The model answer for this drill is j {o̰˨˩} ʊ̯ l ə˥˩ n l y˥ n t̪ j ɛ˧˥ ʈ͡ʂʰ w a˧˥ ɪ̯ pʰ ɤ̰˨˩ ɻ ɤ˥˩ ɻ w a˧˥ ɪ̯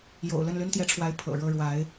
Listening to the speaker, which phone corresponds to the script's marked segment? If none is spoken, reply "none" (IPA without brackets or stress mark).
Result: o̰˨˩